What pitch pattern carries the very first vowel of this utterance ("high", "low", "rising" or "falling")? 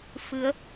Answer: rising